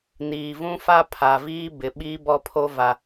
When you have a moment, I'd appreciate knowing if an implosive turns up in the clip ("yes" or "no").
yes